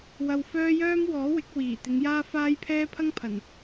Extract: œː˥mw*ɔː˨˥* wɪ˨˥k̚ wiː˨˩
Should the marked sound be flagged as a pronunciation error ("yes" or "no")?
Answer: no